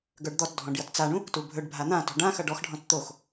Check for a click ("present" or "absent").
absent